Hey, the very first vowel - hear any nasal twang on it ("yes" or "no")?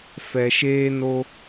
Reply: no